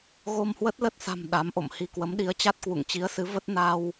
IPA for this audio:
ɣ o˧ m h w ə˦˥ t̚ l ə˦˥ t̚ s a̤˨˩ m ɗ a˨˦ m ʔ o̰˧˨ m h i˧ k w ə˨˦ m ɗ i˨˦ ə̯ t͡ɕ a˦˥ t̚ k w ṵ˧˨ ŋ t͡ɕ i˨˦ ə̯ s ɨ˨˦ v ə˦˥ t̚ n a˧ w

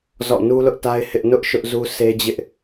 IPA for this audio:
z ɔ̰˦˨ n u˦ l ʊ˦ ʔ t a˦ ɪ̯ h ɪ˦ ʔ n ʊ˦ ʔ ʃ ʊ˦ ʔ z u˦ sʰ e˦ d͡ʑ ɪ˦ ʔ

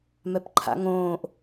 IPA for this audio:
m ɛ p ǃʰ a̰ ŋ õː ʔ

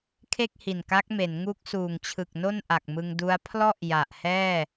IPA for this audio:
kʰ e˥˩ k̚ h i˨˩ n k a˦˥ k̚ m e˩˦ n ŋ u˦˥ k̚ s uː˨˩ ŋ t͡ɕʰ ɯ˨˩ k̚ n o˥˩ n ʔ a˨˩ k̚ m ɯ˧ ŋ d u˦˥ a̯ pʰ l ɔ˥˩ ʔ j a˨˩ ʔ h ɛː˥˩

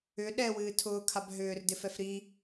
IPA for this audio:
ʏ ɗ ɛ w ɨː tʰ ʊː kʰ a b ɦ ʏː r d ɪ f ɛ f ɾ i

